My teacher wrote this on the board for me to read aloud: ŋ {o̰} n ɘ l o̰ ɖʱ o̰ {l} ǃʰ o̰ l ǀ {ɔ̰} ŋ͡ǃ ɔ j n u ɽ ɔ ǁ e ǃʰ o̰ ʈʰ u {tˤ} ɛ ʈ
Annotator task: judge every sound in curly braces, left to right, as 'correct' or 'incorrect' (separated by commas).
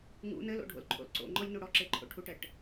incorrect, correct, incorrect, incorrect